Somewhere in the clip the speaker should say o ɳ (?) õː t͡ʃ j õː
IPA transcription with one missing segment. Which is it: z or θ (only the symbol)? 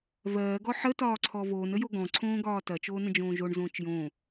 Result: z